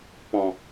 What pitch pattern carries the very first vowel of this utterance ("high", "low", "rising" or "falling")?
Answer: low